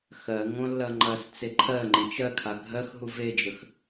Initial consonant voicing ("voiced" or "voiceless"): voiceless